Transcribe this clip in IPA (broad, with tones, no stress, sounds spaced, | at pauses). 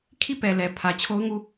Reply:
kʰ i˦˨ p ɛ˨ l ɛ˨ pʰ ä˨ t͡ɕʰ o˦ ʊ̯ ŋ u˦˨